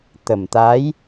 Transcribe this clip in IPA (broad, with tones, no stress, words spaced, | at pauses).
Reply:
t̪ə˨˩mt̪a˧˥j